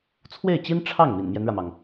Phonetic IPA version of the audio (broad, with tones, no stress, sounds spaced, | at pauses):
t͡sʰ w e˥˩ ɪ̯ t͡ɕ i˥ n ʈ͡ʂʰ ɑ˥˩ ŋ m ḭ˨˩ n m j ɛ˦ n ɻ ä˩ m ɑ˩ ŋ